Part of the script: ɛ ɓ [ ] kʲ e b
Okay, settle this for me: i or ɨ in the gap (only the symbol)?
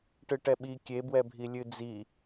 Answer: i